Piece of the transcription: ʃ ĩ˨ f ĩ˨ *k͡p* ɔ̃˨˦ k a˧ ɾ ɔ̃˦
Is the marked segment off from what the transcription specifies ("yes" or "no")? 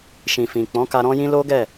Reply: no